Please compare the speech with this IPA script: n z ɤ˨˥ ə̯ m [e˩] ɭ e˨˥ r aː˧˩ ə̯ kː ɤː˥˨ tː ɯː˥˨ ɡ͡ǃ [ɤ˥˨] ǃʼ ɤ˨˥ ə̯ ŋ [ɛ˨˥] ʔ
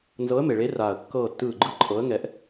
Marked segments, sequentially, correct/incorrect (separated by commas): correct, incorrect, correct